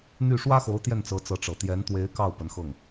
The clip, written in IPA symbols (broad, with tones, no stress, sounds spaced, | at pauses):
n̪ y˥˩ ʂ w ä˥ x o˧˥ ʊ̯ t̪ j ɛ˥˩ n t͡s ɤ˧˥ t͡s ɤ˧˥ ʈ͡ʂ ɤ˨˩ t̪ j ɛ˧˥ n t̪ w e˧˥ ɪ̯ k ɑ˥˩ ʊ̯ p ə˧˥ n x ɤ˥˩ ŋ